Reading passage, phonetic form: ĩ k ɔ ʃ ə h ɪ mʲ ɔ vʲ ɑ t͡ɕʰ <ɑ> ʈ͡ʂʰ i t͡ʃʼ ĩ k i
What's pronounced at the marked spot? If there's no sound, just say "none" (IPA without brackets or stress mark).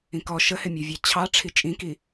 ɑ